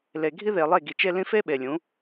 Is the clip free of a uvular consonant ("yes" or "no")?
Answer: yes